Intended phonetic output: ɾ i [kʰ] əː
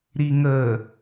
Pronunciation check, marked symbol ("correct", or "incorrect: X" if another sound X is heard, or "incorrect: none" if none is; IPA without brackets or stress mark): incorrect: ŋ